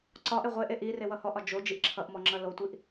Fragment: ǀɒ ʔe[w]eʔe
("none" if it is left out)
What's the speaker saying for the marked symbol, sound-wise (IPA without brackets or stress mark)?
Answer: ʁʷ